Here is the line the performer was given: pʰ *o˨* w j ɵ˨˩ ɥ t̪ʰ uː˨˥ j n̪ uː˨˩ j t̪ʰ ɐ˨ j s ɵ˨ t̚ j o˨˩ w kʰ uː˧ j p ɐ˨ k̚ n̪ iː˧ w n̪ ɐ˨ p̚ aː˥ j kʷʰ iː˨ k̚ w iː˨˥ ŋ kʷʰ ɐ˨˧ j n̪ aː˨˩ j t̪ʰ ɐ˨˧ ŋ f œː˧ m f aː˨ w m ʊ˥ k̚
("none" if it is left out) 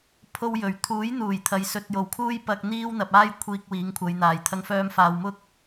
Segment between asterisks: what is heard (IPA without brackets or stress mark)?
o˧